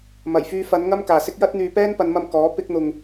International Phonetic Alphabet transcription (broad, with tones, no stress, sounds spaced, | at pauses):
m ɐ˨˩ j f yː˧ f ɐ˨˧ n ŋ ɐ˥ m k aː˨ s ɪ˥ k̚ j ɐ˥ t̚ n̪ yː˧ p ɛː˥ n p ɐ˨˧ n m ɐ˧ m k ɔː˨˥ p ɪ˥ k̚ n̪ ʊ˧ ŋ